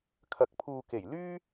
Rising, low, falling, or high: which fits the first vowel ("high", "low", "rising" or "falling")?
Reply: low